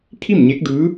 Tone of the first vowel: falling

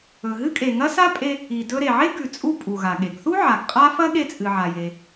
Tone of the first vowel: low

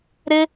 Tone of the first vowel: high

